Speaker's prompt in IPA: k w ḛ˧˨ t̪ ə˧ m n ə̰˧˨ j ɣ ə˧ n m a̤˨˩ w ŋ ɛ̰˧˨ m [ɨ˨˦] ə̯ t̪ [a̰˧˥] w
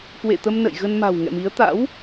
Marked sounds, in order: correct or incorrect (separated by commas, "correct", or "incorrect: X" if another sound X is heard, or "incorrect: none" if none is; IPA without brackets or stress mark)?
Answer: incorrect: i˨˦, correct